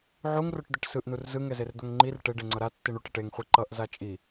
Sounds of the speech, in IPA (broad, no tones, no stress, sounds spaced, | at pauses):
ʕ u ŋ r o ʈ d̪ e ʈ s ɯ ʔ n u r z ɯ ŋ ɛ z e r d̪ o ŋ ŋ͡ǃ i r ʈ e ɖ e ŋ͡ǀ ʌ ɾ a tː i ɳ u ʈ ɛ ʈ e ŋ χʷ i ǃ ʌ ʔ z a t͡ʃʼ i